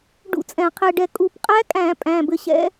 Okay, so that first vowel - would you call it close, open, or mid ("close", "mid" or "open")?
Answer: close